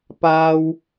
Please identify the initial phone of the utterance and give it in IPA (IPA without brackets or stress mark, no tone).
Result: p